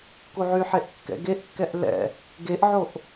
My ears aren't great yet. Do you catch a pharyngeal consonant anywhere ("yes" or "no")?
yes